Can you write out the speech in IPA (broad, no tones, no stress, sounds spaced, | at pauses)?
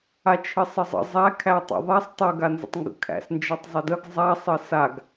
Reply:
a t͡ʃʰ ɘ sˤ ə zˤ ə̰ zˤ æ kʰ æ tˤ ə̰ ðˤ a sˤ tˤ ɘ ɡ a n z ə̰ tˤ ŋ ɡ ə̰ kʰ æ̰ s n d͡ʒ ʌ tˤ zˤ ɘ d ə ɡ zˤ a sˤ ɘ s a ɡ